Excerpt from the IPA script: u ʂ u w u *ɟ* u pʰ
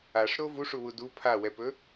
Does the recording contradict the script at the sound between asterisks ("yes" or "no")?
yes